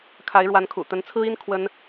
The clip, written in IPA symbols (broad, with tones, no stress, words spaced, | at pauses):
kʰa˧˥ɪ̯ɻwa˧˥nkʰṵ˨˩ t̪ə˧˥nt͡sʰɹ̩˥i˥n kʰwə˥n